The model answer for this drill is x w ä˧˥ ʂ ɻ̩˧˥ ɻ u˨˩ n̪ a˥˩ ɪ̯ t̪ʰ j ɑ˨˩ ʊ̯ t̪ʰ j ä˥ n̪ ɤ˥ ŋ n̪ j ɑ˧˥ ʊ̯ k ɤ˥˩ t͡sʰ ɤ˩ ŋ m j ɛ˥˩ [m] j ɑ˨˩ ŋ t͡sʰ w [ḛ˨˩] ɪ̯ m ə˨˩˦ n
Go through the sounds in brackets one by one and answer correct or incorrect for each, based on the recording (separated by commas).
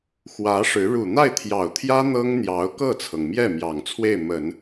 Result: correct, incorrect